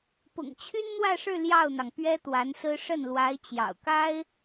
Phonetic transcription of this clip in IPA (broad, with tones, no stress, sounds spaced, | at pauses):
p ʊ̰˨˩ ŋ t͡ɕʰ y˥ n n̪ w ä˥˧ ʂ ɻ̩˥˧ l j ɑ˥˩ ʊ̯ n̪ ɑ˩ ŋ p ɥ ɛ˥ t̪ w a˧˥ n s ɹ̩˥ ʂ ə˥˩ n l w a˧˥ ɪ̯ t͡ɕ j ɑ̰˨˩ ʊ̯ k a˥ ɪ̯